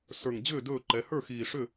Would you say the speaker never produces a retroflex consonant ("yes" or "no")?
no